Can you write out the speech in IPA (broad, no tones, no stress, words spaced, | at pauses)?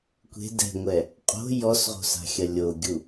kʷe̤ dɛ̤ŋʷɛ | qʼo̤ jɔsʁo̤sa̤xʲɐ lʲoɡʲu